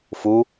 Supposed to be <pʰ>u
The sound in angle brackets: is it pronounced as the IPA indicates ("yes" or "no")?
no